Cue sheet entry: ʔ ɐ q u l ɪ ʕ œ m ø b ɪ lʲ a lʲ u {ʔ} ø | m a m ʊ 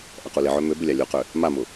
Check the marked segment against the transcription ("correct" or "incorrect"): incorrect